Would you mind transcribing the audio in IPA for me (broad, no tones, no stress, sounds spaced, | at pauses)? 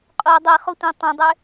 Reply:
qʼ o dˤ e χ o tʷ ĩ tˤ ɛ̃ dˤ ʏ